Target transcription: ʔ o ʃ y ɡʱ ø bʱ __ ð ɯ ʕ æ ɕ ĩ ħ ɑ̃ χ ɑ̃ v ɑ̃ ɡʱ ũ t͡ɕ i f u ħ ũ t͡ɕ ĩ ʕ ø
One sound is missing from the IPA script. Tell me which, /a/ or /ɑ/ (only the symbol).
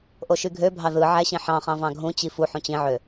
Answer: ɑ